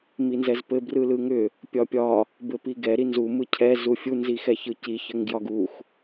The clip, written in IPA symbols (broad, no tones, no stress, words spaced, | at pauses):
minzɛzpɘ brɯlɯŋʏ | pʲɒpʲɒ | bɘpiɡɛ ɾinzu mɯcʰɛ zufʲu nzixɛçɯci çɘŋɡjɒɡux